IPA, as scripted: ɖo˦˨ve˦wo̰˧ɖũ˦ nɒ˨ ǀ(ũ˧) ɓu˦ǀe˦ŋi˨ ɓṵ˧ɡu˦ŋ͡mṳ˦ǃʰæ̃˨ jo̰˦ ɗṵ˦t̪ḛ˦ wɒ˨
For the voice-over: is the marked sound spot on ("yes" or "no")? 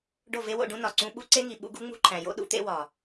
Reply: yes